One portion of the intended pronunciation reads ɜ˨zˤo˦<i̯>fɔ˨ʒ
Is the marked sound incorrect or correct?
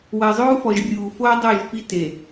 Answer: incorrect: u̯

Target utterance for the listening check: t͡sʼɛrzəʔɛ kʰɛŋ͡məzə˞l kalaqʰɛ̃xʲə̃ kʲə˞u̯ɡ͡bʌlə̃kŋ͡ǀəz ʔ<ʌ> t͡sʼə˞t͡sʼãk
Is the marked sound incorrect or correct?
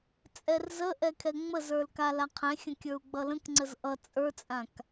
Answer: correct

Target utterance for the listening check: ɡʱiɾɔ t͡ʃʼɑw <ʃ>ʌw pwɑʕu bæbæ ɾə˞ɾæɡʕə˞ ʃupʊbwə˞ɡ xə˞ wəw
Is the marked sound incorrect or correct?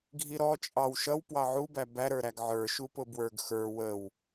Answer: correct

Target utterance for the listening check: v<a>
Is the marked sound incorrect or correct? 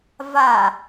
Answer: correct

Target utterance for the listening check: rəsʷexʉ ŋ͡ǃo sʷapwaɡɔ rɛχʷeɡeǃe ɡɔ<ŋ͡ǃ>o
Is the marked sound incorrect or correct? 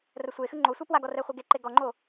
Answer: correct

